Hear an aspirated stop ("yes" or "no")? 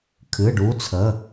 yes